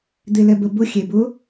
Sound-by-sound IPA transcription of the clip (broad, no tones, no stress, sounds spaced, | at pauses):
d̪ e l ɛ b ə b ʊ xʲ e b ʊ